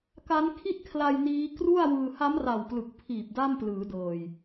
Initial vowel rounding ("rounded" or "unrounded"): unrounded